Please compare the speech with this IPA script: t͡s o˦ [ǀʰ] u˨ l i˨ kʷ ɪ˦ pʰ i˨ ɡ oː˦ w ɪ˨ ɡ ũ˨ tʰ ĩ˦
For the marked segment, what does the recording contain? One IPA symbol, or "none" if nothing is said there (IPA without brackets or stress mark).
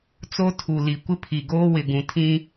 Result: tʰ